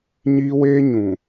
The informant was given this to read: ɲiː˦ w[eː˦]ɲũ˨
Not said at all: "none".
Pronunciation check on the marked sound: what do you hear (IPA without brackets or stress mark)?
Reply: eː˦